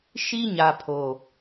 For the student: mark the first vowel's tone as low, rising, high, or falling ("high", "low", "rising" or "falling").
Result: high